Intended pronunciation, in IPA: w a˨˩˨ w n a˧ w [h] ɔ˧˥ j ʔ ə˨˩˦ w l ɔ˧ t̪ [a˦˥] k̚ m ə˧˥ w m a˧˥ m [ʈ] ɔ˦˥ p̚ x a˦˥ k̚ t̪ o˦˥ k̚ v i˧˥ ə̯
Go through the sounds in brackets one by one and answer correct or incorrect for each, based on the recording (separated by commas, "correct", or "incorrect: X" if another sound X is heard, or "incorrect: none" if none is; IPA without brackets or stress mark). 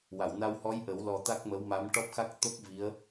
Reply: correct, correct, correct